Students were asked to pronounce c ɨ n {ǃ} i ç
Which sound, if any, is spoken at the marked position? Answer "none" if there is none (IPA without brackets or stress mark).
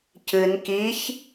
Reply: k